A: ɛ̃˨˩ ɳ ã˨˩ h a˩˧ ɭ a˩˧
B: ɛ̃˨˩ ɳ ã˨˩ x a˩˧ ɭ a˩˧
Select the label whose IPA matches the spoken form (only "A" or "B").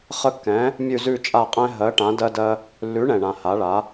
A